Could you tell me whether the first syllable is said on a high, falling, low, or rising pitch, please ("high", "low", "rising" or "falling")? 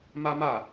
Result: high